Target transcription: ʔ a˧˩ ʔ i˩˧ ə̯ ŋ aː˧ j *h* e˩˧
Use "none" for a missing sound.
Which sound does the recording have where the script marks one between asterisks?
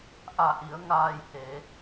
h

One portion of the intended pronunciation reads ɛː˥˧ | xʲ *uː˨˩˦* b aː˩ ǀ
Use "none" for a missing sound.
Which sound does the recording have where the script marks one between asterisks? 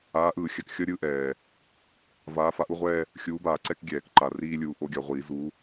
uː˨˥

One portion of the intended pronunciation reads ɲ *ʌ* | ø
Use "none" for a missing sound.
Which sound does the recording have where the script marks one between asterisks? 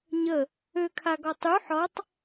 ə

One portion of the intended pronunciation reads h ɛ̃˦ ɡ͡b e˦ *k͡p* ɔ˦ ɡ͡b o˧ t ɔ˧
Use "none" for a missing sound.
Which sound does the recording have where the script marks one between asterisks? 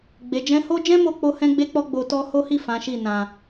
k͡p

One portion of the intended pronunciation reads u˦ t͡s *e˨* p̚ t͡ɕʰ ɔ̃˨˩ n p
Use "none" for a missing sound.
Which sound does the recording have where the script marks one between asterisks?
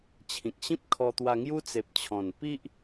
e˨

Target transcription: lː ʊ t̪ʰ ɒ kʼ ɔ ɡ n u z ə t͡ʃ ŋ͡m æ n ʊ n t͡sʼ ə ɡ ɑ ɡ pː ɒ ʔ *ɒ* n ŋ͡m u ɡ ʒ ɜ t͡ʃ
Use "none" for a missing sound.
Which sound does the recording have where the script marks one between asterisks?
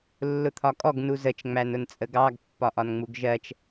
ɒ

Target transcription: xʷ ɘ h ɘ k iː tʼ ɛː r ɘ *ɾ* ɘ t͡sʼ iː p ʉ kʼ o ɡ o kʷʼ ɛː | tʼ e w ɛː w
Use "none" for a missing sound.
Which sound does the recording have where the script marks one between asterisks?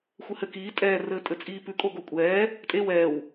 tʼ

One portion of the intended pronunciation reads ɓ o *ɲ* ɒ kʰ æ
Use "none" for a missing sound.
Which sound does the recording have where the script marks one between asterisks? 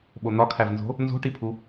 n̪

